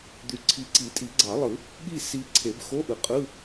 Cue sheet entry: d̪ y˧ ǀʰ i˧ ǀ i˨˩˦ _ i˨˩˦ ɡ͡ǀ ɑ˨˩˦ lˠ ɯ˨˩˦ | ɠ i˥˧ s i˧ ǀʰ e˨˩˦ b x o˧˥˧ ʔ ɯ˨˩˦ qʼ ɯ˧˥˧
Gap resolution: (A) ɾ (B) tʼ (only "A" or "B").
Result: B